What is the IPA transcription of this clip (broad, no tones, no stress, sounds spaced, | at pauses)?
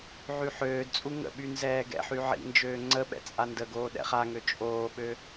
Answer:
ʕ y ħ øː d t͡sʼ u ŋ ə̰ ɓ y n z ɛː ɡ ɛ̰ ħ y ʕ ḭ n d͡ʒ øː ŋ͡ǀ ə ɓ ɛ̰ t͡sʼ a n d ə ɡ oː ɗ ɛ̰ χ a ŋ ø t͡ʃʼ oː ɓ ø